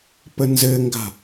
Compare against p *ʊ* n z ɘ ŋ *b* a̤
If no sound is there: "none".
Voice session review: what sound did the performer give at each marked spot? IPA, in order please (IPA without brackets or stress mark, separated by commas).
ə, ɡ